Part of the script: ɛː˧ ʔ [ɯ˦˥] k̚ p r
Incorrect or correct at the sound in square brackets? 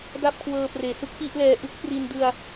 correct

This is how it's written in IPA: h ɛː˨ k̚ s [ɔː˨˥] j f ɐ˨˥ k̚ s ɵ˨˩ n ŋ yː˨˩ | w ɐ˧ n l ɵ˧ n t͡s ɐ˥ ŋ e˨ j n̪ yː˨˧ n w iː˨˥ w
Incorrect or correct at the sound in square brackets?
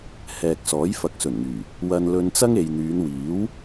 correct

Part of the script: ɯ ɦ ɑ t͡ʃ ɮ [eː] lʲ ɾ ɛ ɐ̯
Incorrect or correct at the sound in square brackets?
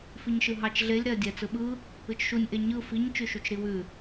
incorrect: e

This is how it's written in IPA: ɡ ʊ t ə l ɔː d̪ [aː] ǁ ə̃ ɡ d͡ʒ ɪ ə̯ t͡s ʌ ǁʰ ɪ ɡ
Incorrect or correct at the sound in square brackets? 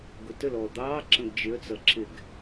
incorrect: ɑː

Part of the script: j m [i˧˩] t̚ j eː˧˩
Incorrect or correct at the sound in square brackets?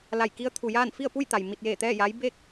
correct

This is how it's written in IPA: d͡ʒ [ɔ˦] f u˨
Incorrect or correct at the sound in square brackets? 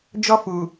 correct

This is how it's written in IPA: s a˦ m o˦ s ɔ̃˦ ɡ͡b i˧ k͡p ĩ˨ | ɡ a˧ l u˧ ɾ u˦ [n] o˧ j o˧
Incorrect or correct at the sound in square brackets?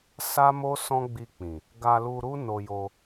correct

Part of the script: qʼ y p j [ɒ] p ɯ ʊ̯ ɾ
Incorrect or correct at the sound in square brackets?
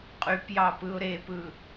incorrect: ɑ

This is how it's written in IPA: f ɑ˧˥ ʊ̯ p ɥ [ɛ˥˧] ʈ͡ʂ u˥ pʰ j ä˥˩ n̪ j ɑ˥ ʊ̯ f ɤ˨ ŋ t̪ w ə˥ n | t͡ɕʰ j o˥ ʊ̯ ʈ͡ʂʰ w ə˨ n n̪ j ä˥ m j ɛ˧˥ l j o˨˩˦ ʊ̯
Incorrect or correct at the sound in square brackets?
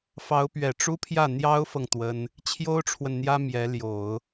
incorrect: ɛ˨˩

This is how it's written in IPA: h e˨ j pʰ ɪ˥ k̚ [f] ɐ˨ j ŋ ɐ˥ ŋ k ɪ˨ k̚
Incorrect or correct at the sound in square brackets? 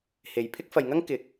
correct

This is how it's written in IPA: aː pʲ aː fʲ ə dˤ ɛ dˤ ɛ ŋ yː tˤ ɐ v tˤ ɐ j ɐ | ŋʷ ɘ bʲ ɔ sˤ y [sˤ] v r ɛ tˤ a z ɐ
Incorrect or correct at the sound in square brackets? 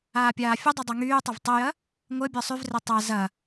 incorrect: none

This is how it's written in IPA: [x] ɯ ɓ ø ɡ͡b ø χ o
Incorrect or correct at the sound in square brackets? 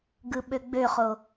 incorrect: ɡ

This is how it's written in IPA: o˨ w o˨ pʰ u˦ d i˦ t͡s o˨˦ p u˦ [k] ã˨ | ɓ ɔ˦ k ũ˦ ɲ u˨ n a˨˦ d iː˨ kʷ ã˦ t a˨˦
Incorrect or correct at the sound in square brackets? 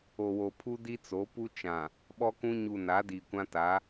incorrect: t͡ʃ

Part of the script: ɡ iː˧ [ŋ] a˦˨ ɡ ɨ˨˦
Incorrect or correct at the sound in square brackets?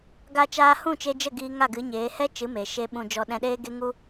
correct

